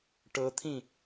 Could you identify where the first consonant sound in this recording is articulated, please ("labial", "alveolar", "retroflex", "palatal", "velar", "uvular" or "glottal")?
retroflex